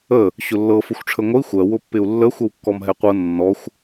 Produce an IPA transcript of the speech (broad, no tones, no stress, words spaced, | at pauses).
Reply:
ə | ɕʊlːɤ fʊxʷʈ͡ʂʰəŋʷəi̯ xʷɜ wʊpːɪu̯lːə xʷəwkːɔmɦɛqʷɤ nːɔxʷ